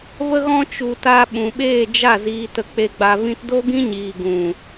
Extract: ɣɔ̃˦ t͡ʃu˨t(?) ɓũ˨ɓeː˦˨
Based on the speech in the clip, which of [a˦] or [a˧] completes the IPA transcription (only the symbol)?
a˧